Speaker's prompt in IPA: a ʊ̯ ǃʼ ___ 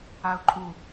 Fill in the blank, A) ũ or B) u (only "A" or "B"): B